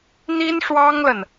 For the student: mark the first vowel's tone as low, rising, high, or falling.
high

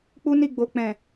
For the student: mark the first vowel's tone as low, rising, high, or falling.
high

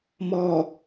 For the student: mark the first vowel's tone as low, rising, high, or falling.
low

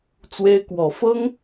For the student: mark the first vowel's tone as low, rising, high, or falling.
high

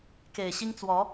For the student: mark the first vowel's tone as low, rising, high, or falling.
low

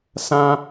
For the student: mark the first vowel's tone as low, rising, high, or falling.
high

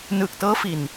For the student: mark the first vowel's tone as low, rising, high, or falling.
low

